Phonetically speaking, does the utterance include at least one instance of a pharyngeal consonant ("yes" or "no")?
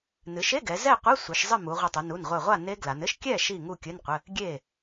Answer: no